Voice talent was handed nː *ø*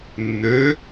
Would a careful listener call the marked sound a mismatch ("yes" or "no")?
no